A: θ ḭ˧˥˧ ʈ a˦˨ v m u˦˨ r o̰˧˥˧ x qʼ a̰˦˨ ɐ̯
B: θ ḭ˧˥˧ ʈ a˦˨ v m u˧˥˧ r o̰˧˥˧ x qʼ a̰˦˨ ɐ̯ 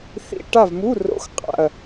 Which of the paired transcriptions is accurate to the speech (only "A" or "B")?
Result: B